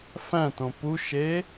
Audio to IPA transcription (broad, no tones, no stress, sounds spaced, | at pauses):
f æ̃ t õ p u ʃ e